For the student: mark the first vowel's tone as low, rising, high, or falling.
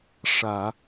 low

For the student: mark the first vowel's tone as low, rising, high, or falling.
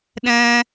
high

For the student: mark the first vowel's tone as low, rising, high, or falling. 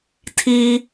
high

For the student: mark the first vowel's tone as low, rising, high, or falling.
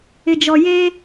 low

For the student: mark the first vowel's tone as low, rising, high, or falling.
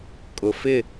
low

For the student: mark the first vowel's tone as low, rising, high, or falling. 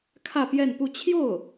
falling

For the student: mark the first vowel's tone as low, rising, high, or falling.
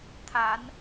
rising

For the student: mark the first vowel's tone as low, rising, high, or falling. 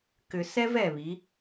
low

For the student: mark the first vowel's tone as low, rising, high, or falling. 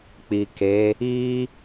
low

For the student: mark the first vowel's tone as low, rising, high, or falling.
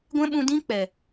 high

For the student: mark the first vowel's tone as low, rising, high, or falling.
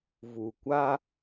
low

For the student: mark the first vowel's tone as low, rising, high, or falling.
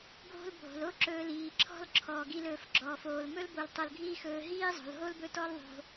high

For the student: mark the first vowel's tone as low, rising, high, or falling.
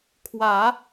low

